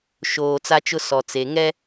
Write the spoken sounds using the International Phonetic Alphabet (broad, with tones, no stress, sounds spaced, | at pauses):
ʃ oː˨ t͡s a˦ t͡ʃ ʊ˦ s ɔ˨ t͡s e˨ ŋ ɛ˦